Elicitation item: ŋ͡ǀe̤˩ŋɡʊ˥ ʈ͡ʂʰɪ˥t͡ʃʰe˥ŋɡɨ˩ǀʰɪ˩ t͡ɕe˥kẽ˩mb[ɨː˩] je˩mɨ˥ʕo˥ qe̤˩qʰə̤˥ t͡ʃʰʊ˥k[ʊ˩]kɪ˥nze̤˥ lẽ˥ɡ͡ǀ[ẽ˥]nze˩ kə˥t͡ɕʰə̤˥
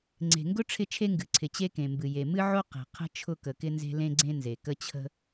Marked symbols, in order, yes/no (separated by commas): no, no, yes